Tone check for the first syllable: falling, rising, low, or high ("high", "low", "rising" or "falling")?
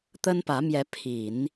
high